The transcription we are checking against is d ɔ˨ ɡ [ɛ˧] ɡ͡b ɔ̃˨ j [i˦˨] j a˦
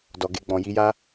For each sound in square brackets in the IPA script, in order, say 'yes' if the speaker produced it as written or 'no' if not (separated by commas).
no, no